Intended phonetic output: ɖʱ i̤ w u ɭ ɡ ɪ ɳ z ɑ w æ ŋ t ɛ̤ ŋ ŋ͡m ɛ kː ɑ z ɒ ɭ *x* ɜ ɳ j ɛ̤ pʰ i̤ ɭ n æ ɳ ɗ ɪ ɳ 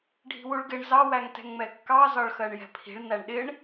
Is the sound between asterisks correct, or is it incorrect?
correct